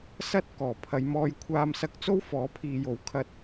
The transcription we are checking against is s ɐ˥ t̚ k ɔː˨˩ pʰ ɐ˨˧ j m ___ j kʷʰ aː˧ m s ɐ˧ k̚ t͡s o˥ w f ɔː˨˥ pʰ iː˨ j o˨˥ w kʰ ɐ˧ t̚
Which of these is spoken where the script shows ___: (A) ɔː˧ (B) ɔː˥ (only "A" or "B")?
A